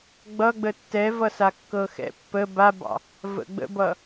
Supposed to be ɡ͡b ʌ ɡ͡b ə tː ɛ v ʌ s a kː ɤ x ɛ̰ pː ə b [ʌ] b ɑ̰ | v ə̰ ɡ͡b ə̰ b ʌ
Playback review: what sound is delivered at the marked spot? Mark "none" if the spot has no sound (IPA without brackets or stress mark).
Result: a